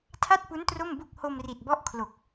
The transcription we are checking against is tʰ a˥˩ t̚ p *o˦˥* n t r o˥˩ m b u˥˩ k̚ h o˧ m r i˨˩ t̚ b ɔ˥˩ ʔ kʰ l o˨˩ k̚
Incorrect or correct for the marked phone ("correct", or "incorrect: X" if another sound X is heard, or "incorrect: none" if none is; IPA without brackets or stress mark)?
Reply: incorrect: u˦˥